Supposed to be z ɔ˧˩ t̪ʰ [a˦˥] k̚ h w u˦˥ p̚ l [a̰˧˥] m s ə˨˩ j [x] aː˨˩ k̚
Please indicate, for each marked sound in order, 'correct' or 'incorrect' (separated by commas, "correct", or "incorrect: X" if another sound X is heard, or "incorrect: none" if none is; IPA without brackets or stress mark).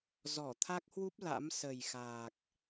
correct, correct, correct